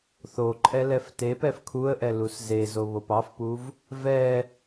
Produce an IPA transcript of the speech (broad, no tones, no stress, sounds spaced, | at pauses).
θ o ǃʼ ɛ l ɛ f t e p ɛ f kʰ u ə̯ ʔ ɛ l u s z e z o β o p ɑ f p u v | v ɛ